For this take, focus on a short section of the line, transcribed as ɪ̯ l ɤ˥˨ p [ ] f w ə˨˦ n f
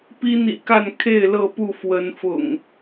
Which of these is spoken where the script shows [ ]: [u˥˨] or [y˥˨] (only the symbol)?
u˥˨